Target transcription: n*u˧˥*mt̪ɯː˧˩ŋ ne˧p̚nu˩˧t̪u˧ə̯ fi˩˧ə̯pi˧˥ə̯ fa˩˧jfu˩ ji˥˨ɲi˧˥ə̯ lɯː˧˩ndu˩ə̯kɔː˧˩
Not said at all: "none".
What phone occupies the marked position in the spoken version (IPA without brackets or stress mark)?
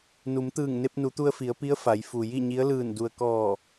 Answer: u˩˧